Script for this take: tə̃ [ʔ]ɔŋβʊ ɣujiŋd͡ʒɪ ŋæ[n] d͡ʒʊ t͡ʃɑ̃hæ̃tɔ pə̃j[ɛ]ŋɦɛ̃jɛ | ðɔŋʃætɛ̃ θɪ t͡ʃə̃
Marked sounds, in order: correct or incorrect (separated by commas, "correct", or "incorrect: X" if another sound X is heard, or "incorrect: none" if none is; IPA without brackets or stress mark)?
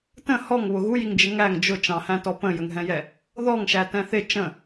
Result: incorrect: h, incorrect: ŋ, incorrect: ə